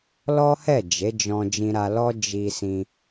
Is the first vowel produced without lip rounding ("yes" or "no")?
no